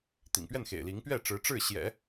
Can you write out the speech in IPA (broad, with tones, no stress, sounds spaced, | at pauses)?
t̪ ḭ˨˩ ŋ p ɥ ɛ˥˩ n x ḛ˨˩ ɪ̯ l i˧˥ ŋ p ɥ ɛ˥˩ ʈ͡ʂ ɻ̩˧˥ ʈ͡ʂ ɻ̩˥˩ ɕ j ɛ̰˨˩˦